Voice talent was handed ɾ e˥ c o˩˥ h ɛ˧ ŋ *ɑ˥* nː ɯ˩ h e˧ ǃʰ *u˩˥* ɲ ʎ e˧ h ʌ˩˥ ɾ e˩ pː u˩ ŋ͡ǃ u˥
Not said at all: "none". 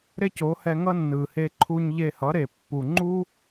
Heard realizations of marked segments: ʌ˥, u˧

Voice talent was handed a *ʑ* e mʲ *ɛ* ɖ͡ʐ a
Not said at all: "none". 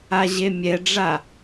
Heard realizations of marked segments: ʑ, ɛ

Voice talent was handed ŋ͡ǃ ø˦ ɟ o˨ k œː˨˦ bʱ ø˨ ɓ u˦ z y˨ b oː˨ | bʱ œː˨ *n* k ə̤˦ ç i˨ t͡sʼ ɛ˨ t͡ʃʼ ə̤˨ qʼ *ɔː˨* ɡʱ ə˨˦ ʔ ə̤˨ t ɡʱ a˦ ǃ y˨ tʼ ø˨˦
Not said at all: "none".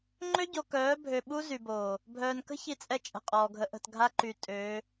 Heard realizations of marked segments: n, ɔː˨

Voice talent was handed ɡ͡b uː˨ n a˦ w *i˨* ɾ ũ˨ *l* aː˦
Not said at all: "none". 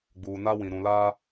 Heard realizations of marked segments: ĩ˨, l

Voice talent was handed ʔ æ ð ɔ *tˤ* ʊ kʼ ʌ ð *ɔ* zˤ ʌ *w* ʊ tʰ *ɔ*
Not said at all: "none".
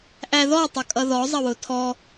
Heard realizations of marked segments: tˤ, ɔ, w, ɔ

